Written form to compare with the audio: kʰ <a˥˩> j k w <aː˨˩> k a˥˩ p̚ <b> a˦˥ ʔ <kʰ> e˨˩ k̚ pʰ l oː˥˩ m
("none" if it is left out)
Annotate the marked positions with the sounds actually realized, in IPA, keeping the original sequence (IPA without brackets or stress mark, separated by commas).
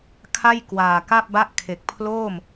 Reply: a˥˩, aː˨˩, b, kʰ